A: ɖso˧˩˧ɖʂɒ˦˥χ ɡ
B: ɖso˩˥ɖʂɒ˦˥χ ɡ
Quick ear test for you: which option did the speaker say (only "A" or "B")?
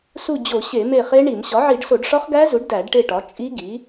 A